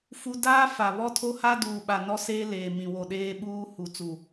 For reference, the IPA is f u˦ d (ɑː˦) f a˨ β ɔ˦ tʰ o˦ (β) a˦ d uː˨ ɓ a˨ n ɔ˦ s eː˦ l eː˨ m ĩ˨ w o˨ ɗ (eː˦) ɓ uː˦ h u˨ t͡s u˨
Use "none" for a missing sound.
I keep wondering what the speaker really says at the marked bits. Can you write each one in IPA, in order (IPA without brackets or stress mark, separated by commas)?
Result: aː˦, h, eː˦